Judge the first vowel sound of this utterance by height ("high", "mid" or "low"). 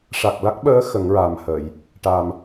low